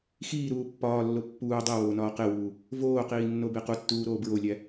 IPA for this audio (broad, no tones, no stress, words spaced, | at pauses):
xiːɾuː pːɒːlːo pːuː dˤiwoːnɒː qewuː | voːqiːnːobe qutːuːɾoː bɹolʲæ